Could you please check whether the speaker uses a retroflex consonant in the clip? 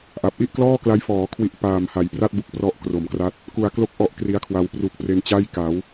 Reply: no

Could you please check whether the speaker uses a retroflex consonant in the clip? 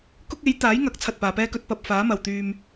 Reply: no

